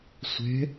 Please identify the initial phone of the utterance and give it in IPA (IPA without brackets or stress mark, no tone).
sʷ